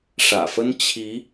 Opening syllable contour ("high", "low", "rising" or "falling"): low